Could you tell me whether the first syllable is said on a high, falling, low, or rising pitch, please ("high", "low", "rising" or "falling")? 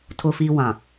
high